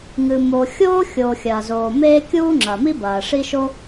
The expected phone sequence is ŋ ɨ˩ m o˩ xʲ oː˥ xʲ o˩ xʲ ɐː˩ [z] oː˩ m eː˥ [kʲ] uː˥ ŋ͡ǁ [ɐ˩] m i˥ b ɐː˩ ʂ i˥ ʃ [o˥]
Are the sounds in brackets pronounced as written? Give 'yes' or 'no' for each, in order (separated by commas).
yes, yes, yes, yes